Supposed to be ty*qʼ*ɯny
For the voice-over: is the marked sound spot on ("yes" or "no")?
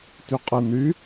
yes